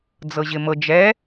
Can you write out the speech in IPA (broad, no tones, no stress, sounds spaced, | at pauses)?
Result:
d͡z ɤ ʑ ɪ m ɤ d͡ʒ ɛ